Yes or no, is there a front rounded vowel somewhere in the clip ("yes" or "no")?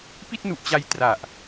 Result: no